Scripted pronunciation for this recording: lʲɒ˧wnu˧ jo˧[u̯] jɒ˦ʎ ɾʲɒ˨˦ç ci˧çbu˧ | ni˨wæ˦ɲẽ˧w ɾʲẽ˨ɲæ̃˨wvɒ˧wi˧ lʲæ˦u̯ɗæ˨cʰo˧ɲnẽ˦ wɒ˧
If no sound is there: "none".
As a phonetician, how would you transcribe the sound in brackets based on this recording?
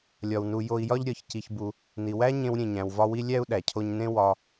i̯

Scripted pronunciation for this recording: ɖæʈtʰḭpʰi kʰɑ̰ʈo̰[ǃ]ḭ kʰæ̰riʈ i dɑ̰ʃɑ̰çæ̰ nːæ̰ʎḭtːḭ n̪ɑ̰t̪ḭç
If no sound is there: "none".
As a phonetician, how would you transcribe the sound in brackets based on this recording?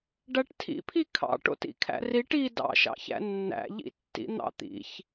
t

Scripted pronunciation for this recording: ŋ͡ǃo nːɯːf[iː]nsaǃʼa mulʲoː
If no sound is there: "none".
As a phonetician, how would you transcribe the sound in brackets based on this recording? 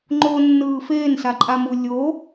eː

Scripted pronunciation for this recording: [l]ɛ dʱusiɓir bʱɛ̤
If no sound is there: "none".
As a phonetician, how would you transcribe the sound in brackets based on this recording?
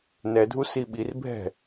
n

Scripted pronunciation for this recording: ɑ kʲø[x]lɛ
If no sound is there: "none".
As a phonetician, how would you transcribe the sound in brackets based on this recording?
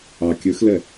x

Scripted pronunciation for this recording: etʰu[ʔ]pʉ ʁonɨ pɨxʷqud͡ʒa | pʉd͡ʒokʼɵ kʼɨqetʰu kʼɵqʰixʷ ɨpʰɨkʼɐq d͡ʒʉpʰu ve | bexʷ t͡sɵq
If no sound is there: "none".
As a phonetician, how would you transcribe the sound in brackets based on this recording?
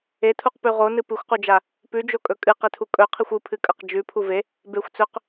q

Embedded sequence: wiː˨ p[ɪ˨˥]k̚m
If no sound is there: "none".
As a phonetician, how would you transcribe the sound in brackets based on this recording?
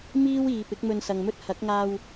ɪ˨˥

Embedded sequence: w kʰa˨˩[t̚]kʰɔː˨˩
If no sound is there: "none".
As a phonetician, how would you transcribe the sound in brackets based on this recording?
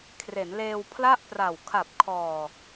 p̚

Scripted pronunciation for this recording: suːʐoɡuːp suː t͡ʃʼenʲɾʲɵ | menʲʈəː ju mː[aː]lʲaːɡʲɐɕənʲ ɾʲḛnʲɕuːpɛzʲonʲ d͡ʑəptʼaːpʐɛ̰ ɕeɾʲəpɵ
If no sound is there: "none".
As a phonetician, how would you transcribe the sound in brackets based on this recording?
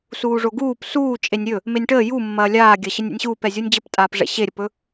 ɐː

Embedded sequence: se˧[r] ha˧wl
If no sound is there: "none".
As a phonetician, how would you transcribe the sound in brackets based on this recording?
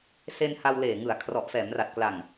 n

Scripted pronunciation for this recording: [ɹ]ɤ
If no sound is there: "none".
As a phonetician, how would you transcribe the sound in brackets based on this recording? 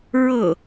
ɹ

